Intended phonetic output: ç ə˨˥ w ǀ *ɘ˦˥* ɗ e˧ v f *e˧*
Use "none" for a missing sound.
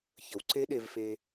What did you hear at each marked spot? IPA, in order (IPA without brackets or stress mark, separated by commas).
e˦˥, e˧